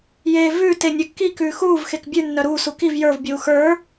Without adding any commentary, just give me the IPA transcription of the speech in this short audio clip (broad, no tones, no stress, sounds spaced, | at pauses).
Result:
j eː v ʉː t e nʲ œ kː i k ʉː x uː v x e k bʲ ʉ nː œ ɾ uː s u k i v j ə˞ v bʲ uː x ə˞